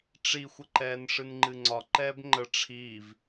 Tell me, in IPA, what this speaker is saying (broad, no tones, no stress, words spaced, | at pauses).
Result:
ʈ͡ʂixʷəǃɛːn ʂɨnŋ͡ǃɨŋ͡ǀɒ ǃɛːbŋ͡ǃə ʈ͡ʂʰiv